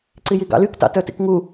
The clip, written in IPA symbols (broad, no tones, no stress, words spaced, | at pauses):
ǀijiɡɑ̰lyk tɑ̰tœtḭkŋu